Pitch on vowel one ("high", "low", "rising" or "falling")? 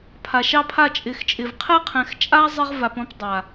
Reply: low